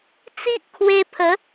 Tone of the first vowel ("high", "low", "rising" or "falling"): high